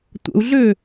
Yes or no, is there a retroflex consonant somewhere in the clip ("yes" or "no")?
no